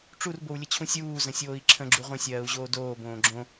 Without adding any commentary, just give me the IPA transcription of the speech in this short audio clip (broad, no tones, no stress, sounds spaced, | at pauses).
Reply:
ʈ͡ʂ u r b o w lʲ ə t͡ɕʰ ũ sʲ uː z ə̃ sʲ oː i̯ ǁʰ ə̃ ɡ͡ǁ u ʁʷ ə̃ sʲ ɜː u̯ ʑ oː d oː b õː ɡ͡ǁ õ